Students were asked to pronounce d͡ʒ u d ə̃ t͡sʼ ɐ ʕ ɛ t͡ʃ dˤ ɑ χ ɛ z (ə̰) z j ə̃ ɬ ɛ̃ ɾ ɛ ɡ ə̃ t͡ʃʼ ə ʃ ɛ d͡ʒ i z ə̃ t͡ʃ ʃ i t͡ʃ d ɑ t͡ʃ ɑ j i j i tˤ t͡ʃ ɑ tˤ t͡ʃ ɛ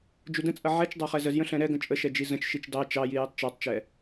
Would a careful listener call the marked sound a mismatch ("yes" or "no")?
yes